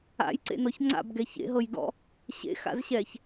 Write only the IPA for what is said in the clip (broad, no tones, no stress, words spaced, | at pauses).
a̰jǀḛnɔç ŋ͡ǀa̰bɡɛ çḛɦɤjɡɔ̰ | ɕḛxa̰zɕɛç